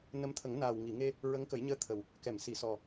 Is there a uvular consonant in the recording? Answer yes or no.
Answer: no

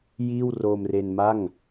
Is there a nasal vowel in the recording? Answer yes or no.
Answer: no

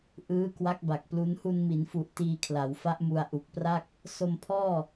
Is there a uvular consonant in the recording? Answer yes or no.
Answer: no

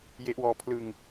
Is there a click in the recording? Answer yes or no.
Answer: no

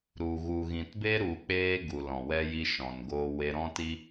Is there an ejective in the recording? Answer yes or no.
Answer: no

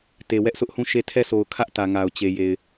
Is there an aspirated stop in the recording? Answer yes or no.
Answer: yes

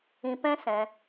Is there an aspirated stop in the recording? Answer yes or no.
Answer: no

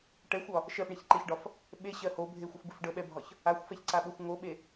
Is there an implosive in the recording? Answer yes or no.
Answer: yes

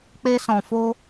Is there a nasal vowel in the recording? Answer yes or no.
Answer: yes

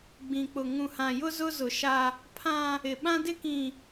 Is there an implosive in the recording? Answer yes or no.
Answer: yes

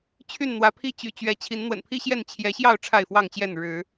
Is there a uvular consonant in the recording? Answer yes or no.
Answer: no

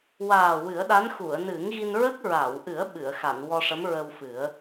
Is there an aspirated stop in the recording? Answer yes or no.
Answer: no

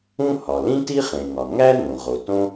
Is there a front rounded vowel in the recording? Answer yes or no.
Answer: no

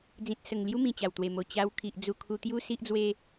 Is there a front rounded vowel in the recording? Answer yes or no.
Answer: no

